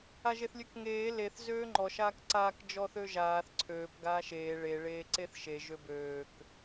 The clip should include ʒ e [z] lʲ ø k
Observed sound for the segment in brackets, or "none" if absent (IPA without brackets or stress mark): θ